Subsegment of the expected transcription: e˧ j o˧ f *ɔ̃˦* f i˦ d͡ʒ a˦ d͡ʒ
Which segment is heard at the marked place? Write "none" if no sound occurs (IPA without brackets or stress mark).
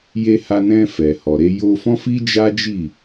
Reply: ɔ̃˦